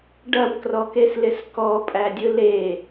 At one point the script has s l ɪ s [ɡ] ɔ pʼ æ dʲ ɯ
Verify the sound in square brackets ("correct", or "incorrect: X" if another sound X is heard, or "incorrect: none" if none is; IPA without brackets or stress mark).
incorrect: k